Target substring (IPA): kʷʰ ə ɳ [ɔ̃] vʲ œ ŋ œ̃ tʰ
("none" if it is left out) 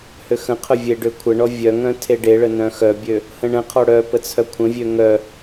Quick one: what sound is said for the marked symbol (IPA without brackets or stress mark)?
ɔ